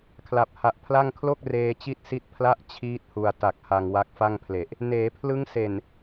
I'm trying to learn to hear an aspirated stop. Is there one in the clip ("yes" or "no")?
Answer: yes